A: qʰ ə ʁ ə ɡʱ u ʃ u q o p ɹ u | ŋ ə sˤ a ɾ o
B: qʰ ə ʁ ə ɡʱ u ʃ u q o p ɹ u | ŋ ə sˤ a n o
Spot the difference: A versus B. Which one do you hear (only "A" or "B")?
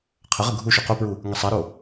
A